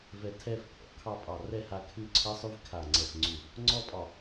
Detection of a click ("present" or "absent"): present